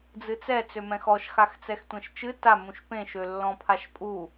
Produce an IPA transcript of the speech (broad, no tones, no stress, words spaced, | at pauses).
d͡zɨt͡sɛ t͡sømɛ̃xɔʃ xaxt͡sɛxtʷɛ̃ʃt͡ʃɨ ta mũʃpẽʃ ølːɔ̃pʰaʃpʼu